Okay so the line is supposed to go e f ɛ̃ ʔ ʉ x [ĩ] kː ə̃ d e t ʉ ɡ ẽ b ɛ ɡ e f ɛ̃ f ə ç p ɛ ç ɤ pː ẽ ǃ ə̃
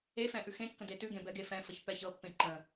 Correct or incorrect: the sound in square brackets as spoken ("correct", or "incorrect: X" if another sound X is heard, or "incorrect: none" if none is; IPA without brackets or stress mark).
incorrect: ẽ